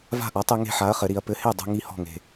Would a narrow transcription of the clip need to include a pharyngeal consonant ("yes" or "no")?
yes